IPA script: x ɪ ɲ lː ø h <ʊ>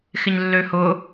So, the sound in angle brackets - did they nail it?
yes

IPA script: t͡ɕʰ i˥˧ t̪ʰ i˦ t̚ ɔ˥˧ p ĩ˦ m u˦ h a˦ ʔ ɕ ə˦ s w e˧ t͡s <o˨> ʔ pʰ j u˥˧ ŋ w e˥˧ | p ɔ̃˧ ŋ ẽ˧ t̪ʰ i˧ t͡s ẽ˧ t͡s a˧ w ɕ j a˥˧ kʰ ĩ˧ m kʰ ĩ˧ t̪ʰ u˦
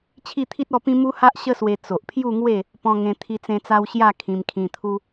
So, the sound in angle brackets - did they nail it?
yes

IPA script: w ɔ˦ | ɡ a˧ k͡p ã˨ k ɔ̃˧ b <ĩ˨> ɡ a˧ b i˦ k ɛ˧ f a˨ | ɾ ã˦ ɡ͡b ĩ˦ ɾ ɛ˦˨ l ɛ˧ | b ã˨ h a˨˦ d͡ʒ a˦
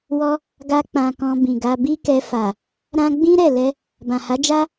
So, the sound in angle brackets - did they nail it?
yes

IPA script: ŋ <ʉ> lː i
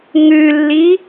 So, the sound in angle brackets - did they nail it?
yes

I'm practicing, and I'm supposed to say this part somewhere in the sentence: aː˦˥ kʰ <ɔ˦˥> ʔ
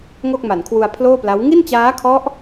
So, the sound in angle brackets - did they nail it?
yes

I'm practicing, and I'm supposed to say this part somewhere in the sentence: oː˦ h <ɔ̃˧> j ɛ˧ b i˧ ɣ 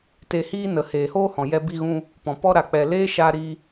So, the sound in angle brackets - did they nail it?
no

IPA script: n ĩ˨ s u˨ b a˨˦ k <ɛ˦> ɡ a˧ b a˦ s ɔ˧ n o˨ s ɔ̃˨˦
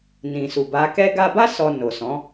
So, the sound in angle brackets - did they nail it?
yes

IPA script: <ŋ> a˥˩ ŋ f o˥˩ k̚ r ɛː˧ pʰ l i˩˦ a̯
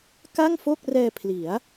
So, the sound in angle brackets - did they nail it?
no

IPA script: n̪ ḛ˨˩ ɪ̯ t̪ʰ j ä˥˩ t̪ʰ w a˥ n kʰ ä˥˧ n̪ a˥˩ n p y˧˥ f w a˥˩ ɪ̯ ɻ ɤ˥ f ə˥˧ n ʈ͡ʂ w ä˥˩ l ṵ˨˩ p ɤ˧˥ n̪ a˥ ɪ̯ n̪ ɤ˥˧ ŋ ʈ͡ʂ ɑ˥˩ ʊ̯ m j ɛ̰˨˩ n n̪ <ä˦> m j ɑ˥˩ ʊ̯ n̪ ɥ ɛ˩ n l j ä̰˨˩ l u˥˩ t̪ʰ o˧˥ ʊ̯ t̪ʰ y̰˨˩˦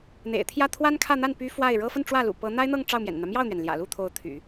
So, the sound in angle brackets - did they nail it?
yes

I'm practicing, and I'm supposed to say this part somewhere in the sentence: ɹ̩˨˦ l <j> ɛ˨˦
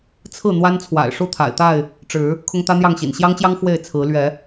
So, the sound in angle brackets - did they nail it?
no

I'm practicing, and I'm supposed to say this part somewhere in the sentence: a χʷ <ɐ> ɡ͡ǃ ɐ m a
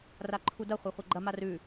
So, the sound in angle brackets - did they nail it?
yes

